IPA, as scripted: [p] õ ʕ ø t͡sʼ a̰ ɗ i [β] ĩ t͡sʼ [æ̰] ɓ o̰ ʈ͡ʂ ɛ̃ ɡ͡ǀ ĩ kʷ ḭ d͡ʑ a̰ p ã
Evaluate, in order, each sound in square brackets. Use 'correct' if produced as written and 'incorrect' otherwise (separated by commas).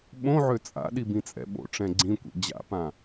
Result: incorrect, incorrect, incorrect